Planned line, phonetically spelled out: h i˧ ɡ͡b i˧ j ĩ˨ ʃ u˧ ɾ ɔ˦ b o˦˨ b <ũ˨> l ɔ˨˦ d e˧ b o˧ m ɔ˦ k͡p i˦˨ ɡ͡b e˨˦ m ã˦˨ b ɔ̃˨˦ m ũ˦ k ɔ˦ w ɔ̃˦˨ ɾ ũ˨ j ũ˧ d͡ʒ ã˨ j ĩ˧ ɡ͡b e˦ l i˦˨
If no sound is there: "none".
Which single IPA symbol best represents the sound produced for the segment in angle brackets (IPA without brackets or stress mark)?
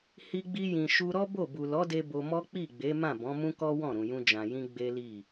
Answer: u˨